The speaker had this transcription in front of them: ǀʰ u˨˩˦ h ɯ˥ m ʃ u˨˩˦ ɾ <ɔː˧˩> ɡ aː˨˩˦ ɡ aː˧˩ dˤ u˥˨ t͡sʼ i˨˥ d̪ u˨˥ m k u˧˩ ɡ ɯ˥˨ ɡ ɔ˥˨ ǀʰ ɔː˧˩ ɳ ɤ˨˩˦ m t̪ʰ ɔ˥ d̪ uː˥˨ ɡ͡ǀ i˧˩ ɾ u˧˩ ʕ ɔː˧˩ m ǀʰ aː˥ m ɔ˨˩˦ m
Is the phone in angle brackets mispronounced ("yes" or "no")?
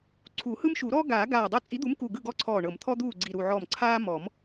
yes